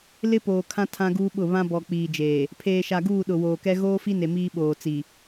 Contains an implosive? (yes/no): yes